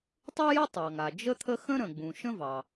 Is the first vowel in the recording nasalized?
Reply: no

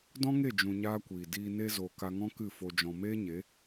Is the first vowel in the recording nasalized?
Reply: yes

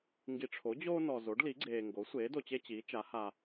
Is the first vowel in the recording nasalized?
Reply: no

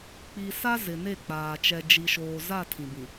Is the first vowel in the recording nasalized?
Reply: no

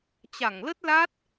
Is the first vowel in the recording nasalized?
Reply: no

